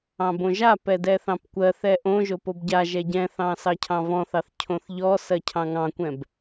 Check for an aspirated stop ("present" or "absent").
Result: present